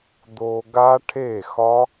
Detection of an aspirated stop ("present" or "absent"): present